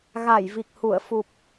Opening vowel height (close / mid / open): open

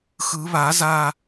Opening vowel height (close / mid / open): close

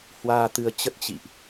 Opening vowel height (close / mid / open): open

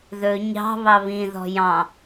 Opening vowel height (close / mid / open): mid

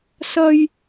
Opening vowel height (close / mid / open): open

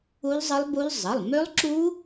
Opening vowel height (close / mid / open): close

